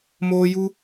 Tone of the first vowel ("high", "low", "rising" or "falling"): high